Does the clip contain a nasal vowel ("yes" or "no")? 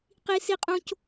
yes